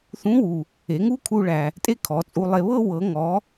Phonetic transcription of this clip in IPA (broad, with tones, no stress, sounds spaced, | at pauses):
θ ũ˧˥ w u˩ | e˩˧ ŋ uː˥ kʰ uː˧ ɭ æ˩ | tʼ e˥ kʰ ɔ˩˧ t͡sʼ u˧ lˠ e˧ β ɤ˥ w ɤ˩˧ ŋ ɔ˩˧